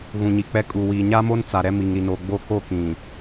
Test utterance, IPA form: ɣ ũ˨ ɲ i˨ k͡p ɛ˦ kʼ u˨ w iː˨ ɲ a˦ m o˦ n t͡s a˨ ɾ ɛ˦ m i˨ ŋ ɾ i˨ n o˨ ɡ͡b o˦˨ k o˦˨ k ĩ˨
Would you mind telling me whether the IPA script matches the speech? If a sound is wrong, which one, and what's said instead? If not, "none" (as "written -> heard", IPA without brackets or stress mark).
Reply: none